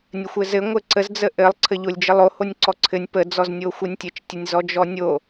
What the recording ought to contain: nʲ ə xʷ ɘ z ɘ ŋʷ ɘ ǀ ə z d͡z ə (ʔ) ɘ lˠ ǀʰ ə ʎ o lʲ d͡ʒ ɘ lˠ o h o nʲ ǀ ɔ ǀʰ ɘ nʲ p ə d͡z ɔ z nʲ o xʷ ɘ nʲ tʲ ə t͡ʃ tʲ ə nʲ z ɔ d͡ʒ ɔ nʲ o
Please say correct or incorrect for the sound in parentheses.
correct